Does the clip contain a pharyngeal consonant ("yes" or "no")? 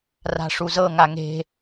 no